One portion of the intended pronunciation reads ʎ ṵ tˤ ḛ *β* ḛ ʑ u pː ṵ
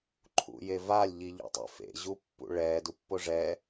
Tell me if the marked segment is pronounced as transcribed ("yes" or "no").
no